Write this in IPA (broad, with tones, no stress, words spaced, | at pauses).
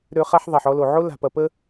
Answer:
ɾø˧ χa˧ħðˤa˨ħ ɔ˧lo˨ʕo˦ la̤˧pɐ˧ pə˦